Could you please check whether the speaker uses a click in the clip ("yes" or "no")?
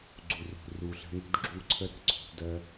yes